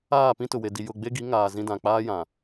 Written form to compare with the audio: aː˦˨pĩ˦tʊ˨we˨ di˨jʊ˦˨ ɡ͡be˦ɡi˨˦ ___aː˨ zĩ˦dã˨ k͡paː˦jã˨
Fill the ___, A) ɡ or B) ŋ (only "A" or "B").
B